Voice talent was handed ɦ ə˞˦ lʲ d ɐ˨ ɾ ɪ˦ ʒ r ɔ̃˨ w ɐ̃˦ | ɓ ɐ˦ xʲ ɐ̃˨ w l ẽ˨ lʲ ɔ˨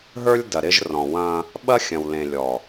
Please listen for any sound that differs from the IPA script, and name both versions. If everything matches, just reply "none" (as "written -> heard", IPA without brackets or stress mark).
none